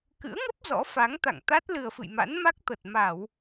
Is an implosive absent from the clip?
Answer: yes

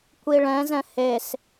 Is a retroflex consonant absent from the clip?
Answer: no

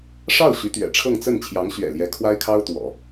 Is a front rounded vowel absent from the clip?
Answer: no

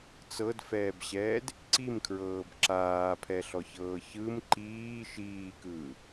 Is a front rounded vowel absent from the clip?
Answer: yes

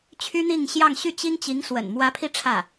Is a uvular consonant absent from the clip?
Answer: yes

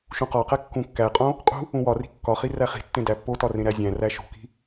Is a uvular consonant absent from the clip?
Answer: no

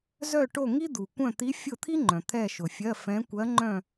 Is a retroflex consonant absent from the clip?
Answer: no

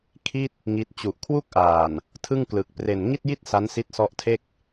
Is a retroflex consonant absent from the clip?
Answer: yes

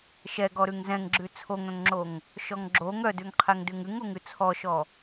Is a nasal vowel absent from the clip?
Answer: no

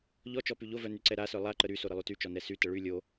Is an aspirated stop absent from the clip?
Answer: yes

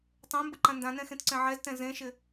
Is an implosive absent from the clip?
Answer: yes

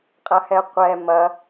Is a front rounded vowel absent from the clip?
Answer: yes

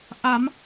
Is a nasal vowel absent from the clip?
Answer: yes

